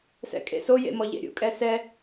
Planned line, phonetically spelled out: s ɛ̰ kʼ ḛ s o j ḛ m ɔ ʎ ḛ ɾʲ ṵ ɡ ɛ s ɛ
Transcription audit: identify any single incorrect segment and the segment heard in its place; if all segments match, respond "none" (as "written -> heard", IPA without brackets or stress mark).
ɡ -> kʼ